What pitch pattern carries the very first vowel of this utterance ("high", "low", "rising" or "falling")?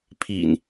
low